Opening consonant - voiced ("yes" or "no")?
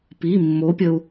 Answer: no